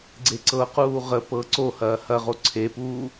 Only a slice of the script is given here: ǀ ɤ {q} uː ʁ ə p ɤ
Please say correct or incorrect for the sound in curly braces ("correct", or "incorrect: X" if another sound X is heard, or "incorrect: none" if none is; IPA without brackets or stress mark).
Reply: correct